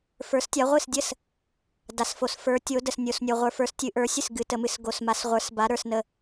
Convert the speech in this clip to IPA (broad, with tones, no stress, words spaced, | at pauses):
fə˞˨˦stʲa˨˦ ʁʷɨ˥˩sdʲə˥˩s | da˨sfo˨s fə˞˨˦tʲo˨˦ də˨snʲo˨s nʲo˨ʁʷə˞˨fə˞˨˦s tʲɨ˨˦ʔə˞˨˦sʲɨ˥˩s ɡɨ˨˦tə˨˦mɨ˨˦s ɡo˨sma˨˦sʁʷə˞˨˦sba˨˦ ɾə˞˨snə˨